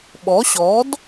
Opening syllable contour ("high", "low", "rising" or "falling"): rising